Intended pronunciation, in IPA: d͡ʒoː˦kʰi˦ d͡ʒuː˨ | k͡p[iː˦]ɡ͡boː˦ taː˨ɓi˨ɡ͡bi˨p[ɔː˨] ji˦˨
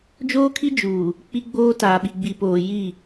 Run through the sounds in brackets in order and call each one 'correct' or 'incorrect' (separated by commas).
incorrect, incorrect